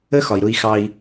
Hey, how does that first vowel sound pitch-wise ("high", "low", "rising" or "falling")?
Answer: high